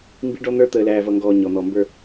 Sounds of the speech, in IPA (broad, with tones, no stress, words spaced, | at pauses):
mbi˦ɖɔ˦n̪ə˞˦ t̪əː˨læː˨vʌ˨ŋɡɔː˨ ɲɔ˨n̪ɔ˨mbə˞˦